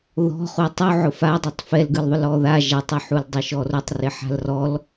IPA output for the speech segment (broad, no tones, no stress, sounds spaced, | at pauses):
ð ɔ̤ χ u tˤ u ʕ ʊ f a dˤ ɯ tˤ f ɛ l ɡ ɯ l ðˤ ʊ l ɔ ð a ʒ a tˤ ʊ ħ u l dˤ ɪ ʃ ɔ r ʊ tˤ r ɪ ħ a̤ l r ɔ l